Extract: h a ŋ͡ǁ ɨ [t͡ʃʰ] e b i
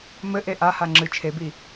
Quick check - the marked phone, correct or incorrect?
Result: correct